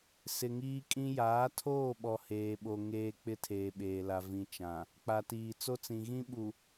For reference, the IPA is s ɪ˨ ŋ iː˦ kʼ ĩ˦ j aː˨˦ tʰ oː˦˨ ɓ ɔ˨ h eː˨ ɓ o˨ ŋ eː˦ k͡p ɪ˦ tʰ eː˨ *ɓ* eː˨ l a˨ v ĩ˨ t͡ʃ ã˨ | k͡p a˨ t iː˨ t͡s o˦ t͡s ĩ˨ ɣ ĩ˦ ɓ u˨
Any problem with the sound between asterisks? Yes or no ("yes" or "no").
no